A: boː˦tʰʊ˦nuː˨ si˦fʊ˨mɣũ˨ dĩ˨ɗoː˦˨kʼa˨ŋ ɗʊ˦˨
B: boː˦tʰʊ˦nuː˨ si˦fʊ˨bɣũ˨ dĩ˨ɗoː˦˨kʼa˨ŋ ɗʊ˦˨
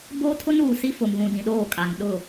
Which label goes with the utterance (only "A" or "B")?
A